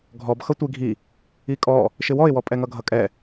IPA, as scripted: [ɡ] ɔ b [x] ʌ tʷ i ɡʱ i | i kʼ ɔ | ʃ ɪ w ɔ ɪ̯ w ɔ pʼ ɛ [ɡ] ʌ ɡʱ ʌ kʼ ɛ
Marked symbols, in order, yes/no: no, yes, no

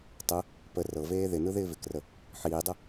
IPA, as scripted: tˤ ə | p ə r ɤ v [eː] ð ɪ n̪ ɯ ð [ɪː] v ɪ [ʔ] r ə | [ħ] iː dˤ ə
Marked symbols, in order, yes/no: yes, yes, no, yes

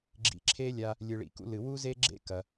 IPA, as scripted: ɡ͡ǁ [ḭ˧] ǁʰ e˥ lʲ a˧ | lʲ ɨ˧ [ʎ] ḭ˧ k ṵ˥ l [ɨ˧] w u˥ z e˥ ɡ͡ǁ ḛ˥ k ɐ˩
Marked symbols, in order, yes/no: yes, no, yes

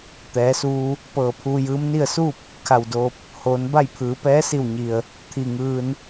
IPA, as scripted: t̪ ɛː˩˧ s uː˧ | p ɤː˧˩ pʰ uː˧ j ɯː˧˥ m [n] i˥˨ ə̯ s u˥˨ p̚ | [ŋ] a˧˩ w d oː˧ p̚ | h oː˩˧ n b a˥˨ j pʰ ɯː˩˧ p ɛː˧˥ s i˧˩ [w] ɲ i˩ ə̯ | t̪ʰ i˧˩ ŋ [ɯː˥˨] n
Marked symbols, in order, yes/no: yes, no, yes, no

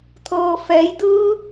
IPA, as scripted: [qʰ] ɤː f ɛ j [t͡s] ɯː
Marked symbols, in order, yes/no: no, no

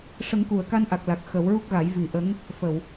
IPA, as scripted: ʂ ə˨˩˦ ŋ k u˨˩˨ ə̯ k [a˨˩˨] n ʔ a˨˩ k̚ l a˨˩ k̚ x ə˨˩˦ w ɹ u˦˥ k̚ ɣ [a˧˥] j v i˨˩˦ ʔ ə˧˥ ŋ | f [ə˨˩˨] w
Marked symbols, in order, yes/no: no, no, yes

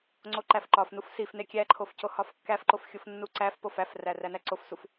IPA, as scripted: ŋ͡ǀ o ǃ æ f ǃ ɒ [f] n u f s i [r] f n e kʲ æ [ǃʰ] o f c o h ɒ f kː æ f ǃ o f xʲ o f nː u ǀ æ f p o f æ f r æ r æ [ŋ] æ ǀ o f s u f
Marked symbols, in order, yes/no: yes, no, yes, no

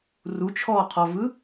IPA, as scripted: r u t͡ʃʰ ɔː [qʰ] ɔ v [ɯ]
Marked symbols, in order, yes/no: yes, yes

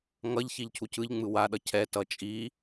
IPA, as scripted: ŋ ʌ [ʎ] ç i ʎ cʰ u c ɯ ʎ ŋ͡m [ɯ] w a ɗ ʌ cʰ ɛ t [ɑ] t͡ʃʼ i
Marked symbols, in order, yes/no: yes, yes, no

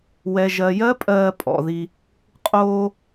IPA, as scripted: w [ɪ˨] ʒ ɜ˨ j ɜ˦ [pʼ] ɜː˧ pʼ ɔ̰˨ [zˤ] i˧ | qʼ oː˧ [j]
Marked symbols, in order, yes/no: no, yes, no, no

